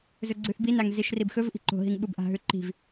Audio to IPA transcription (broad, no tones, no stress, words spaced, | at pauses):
zɵɡ͡ǀʉθbinaŋ ziʃribxɵvʔi̤ ǃo̤ɦiŋ ɓubʔa̤ɦʉ ǃi̤v